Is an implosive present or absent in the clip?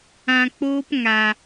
absent